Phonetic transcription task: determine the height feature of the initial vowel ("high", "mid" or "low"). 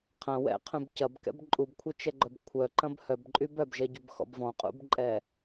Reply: low